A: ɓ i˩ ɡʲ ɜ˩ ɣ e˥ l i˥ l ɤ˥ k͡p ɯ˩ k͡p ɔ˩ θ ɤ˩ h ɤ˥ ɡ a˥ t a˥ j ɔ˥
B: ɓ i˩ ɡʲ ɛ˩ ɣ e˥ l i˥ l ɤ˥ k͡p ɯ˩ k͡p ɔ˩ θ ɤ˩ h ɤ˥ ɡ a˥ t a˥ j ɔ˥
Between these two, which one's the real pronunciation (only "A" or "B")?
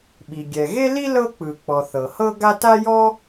B